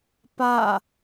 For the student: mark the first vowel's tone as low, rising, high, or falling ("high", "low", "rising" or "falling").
falling